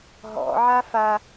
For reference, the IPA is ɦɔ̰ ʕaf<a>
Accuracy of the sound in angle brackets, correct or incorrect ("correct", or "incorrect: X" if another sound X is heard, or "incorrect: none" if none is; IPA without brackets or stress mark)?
correct